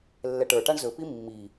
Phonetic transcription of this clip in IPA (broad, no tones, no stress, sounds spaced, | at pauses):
lː ɛ ʈ ə˞ ʈ a ɳ z ɵ p i mː i